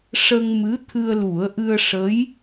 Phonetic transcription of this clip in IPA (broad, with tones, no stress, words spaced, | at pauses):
ʂə˧ŋmɨ˧˥ t̪ʰɨ˧ə̯lu˨˩˦ə̯ʔɨ˧ə̯ ʂə˧˥j